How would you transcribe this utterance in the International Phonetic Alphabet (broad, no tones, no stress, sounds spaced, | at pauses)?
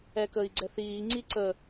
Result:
ɛ k ə i̯ ɡ͡ǀ ɛ θ iː ŋ͡ǀ i ǀ ə